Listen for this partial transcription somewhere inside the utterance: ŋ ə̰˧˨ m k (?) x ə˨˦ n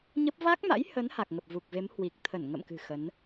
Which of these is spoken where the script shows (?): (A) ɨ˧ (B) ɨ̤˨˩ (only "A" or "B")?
B